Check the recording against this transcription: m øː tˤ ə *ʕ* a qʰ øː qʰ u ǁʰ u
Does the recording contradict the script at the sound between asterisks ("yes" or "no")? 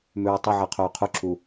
no